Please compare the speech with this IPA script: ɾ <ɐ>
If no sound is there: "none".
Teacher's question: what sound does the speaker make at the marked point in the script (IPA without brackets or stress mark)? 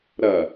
ɐ